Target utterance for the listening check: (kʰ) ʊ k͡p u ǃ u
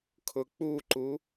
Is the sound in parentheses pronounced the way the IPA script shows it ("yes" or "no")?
yes